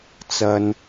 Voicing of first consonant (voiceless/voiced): voiceless